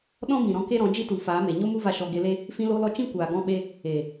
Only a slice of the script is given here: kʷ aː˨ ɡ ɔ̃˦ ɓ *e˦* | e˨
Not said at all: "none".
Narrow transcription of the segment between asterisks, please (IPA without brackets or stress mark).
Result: e˦